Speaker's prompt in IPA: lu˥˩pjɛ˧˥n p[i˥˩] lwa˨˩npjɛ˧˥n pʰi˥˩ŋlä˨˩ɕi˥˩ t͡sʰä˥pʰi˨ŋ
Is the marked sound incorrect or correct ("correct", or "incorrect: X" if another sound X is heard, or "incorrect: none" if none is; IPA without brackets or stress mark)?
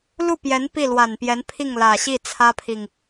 correct